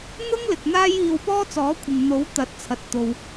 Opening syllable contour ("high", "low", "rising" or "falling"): high